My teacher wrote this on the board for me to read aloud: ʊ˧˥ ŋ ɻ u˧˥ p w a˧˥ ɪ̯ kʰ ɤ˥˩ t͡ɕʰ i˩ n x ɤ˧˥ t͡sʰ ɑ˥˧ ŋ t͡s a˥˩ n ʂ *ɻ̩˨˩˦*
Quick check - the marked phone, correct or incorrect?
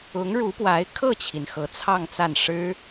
incorrect: ɻ̩˥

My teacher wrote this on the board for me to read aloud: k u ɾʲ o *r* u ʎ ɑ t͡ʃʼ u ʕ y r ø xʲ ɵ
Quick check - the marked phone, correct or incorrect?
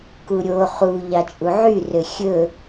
incorrect: χ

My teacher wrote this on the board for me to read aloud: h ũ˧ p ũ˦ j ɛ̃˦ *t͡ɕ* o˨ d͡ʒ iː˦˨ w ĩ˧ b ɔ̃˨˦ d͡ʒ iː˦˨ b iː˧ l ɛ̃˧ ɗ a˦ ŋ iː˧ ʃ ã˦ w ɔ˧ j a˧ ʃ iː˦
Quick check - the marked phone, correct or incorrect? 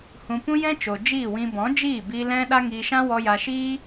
incorrect: t͡ʃ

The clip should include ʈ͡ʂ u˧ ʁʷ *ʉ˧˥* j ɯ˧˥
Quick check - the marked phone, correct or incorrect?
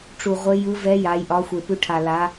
incorrect: ɘ˧˥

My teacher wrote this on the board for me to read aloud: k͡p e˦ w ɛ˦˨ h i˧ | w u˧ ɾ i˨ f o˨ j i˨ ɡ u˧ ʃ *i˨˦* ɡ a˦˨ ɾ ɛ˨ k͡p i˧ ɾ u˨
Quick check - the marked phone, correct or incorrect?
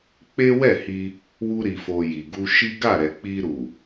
incorrect: i˦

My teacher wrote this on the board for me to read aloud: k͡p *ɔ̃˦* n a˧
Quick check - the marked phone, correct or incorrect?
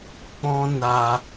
correct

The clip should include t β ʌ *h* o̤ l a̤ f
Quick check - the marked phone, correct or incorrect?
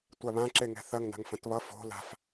incorrect: f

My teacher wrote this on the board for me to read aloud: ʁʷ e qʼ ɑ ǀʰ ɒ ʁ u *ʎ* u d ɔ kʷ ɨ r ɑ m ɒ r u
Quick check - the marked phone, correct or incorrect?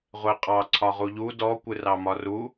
correct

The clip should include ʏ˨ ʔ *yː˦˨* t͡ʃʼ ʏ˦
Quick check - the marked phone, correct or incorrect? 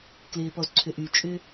incorrect: yː˨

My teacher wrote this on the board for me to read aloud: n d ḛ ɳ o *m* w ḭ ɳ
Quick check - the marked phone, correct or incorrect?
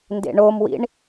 correct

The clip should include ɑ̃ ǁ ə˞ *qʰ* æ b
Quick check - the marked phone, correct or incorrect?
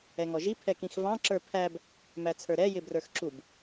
incorrect: pʰ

